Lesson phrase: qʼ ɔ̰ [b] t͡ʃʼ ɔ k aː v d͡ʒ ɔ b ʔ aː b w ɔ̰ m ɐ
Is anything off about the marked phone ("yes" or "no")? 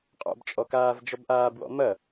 no